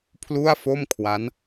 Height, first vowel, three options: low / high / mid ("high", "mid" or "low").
high